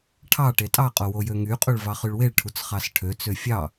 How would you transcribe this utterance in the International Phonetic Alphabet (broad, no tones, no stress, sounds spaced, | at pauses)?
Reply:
ʈʰ ɑ ʈ e tʼ ɑ qʼ o w o j ø ŋ y qʼ u ɭ v ɑ χ y ɭ w e ɭ ʈʰ u t͡s χ ɑ s ʈʰ ø t͡s ø fʲ ɑ